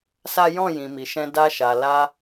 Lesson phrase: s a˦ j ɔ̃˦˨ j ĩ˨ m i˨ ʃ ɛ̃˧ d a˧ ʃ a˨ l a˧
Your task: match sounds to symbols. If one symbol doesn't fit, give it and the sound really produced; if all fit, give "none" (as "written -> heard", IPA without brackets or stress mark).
none